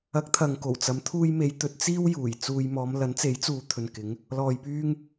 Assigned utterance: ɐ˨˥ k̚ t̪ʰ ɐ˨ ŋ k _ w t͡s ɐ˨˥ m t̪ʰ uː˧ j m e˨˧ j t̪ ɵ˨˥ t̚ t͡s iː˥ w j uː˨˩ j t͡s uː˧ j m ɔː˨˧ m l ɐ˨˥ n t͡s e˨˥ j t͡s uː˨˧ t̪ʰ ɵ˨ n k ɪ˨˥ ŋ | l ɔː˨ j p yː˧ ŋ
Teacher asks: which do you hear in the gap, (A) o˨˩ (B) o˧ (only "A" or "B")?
A